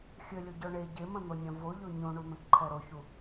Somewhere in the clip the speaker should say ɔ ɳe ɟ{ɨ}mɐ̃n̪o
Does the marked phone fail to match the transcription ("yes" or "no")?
yes